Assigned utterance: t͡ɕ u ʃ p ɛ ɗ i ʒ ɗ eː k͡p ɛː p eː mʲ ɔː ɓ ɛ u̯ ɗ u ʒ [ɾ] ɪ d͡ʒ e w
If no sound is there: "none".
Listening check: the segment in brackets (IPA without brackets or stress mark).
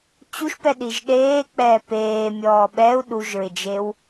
ɹ